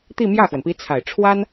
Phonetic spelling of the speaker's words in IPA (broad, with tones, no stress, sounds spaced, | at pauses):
t̪ i˥˧ m j ä˥˩ x w ə˩ n p i˧˥ t͡sʰ a˨˩ ɪ̯ ʈ͡ʂʰ w a˥ n